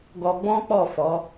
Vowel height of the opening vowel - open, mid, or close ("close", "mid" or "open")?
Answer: mid